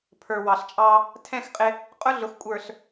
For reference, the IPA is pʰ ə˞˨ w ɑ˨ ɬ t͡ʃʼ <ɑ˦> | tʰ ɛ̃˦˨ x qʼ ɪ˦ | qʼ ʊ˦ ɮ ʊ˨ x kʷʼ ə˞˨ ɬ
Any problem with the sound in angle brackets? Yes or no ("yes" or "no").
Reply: no